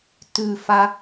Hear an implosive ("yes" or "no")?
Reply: no